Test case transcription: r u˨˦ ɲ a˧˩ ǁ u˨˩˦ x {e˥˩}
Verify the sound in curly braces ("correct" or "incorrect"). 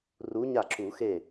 correct